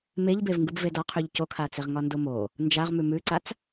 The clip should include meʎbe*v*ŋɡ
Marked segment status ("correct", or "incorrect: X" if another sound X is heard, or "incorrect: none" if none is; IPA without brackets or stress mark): correct